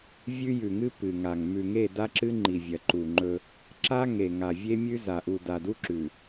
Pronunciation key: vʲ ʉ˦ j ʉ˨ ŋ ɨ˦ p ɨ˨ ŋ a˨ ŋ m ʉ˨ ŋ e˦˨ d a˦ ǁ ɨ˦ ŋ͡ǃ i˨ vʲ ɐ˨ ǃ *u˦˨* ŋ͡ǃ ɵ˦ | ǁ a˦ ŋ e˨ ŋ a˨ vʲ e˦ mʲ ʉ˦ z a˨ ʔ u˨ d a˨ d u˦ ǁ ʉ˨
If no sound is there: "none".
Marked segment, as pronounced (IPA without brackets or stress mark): u˨